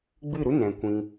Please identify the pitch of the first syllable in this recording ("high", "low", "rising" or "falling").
falling